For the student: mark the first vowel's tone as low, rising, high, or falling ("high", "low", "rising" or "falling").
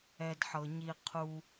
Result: low